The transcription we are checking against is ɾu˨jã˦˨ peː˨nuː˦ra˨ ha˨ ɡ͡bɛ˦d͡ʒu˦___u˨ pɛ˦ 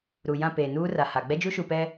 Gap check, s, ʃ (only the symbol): ʃ